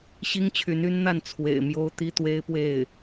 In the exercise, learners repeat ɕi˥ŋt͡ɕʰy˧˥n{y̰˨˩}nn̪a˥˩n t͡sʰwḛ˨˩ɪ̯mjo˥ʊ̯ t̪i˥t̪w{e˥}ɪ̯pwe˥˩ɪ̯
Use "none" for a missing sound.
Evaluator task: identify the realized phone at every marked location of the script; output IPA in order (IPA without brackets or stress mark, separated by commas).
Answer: y˥, e˥